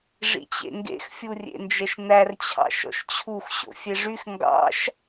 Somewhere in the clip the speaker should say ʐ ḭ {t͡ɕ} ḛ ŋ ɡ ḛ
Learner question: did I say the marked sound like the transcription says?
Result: yes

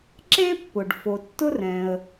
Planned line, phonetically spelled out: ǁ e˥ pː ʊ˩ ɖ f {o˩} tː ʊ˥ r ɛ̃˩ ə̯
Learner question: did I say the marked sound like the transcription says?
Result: yes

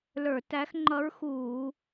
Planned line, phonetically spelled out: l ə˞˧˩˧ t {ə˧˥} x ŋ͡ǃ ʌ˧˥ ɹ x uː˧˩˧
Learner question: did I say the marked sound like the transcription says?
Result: no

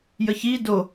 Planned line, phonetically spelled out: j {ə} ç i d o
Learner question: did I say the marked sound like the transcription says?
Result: yes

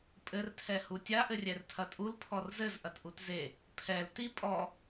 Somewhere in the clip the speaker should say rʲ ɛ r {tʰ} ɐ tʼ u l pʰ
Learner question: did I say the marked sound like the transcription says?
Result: yes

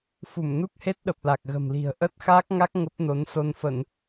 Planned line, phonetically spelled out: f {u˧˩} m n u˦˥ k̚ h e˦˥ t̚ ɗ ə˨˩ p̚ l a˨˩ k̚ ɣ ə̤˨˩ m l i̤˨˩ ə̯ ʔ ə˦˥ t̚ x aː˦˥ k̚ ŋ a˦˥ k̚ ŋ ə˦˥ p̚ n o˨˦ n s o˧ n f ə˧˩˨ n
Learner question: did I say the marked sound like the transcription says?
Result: yes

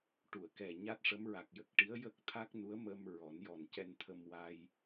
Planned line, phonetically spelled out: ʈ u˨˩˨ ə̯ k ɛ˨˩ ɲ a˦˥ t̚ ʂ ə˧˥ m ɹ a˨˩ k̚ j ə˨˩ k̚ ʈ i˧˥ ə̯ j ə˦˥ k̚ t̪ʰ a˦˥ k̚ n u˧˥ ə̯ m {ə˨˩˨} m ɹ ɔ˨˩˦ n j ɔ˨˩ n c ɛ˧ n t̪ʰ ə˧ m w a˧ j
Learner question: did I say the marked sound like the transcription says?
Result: no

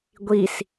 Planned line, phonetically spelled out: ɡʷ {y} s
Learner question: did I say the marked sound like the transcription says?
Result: no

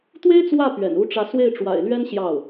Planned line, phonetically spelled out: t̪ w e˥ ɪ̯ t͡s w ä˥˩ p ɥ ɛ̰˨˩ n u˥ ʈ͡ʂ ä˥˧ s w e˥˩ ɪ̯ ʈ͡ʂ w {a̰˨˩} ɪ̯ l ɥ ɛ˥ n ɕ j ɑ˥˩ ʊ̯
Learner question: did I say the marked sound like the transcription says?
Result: yes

